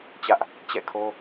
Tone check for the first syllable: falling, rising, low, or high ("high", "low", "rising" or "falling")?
high